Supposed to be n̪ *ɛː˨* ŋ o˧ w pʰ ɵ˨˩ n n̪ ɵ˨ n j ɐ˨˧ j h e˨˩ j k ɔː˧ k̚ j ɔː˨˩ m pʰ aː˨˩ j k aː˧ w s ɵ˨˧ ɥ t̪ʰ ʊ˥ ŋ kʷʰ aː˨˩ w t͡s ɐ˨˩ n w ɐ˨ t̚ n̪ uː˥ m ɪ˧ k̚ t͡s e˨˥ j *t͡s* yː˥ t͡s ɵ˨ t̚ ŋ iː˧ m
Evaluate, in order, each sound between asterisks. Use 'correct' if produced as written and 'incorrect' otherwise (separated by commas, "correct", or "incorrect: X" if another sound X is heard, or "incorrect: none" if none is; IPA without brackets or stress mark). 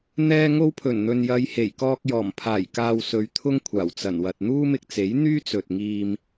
incorrect: ɛː˧, incorrect: n̪